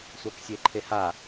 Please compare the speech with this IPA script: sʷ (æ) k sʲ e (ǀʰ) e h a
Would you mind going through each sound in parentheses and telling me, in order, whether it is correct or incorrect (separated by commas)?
incorrect, incorrect